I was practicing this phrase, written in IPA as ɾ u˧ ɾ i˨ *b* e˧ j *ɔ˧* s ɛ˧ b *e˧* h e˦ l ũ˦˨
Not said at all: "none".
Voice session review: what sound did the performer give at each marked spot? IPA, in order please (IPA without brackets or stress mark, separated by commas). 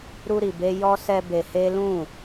b, ɔ˧, e˧